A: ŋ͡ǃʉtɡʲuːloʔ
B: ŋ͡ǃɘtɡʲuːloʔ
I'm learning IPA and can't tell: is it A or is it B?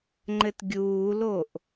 B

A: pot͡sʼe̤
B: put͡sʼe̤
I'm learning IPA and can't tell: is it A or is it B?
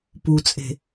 B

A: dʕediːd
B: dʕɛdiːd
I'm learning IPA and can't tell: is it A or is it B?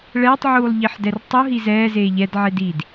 A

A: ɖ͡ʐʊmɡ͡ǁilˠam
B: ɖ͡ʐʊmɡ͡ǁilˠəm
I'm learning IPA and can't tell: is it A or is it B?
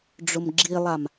A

